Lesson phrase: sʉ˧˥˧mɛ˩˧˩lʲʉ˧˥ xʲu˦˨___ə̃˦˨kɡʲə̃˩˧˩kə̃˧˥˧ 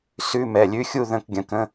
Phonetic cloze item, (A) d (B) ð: B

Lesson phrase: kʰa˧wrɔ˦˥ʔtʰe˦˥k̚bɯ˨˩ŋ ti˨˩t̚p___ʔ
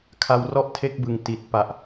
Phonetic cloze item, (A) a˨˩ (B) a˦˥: A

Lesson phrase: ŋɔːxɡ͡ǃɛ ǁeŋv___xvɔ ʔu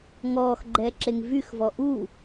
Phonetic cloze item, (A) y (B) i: A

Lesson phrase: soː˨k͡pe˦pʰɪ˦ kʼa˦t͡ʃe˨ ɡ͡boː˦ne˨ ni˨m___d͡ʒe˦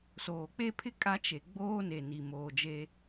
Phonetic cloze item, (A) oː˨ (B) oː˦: A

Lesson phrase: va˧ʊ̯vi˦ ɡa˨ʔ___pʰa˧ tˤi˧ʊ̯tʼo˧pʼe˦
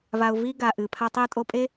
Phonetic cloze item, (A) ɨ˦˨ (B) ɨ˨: B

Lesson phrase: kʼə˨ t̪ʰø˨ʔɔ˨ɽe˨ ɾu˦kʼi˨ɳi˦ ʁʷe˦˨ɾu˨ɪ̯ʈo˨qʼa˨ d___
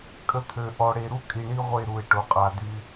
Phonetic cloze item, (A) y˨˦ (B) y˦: B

